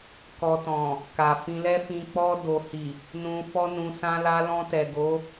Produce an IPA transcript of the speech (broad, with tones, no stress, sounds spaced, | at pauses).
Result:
k ɔ˨ t ɔ̃˨ | k a˨ f ĩ˧ l ɛ˦ f ĩ˧ k͡p ɔ˧ d o˨ h i˨ | n ũ˧ f ɔ˦ n ũ˧ s ã˧ l a˧ l ɔ̃˧ t ɛ˨ ɡ o˨˦